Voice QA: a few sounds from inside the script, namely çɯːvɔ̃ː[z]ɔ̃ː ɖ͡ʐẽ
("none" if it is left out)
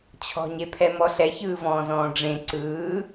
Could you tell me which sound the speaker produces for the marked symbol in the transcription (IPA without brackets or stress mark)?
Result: z